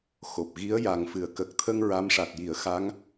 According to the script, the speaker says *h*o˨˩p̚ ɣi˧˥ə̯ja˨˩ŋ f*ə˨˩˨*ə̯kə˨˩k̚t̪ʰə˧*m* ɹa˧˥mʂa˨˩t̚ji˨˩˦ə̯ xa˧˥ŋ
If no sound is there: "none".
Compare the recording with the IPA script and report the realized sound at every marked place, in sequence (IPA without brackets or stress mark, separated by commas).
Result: x, ɨ˨˩˨, ŋ